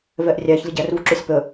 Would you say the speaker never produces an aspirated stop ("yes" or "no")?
yes